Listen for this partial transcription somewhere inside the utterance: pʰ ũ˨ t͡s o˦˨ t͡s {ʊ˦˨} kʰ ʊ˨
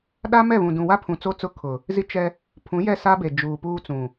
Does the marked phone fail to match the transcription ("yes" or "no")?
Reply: no